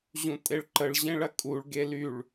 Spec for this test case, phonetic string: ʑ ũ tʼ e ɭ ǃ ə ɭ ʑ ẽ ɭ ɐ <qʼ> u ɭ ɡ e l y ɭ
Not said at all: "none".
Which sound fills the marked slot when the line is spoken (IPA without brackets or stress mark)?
kʼ